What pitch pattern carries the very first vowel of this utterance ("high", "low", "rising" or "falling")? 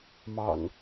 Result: low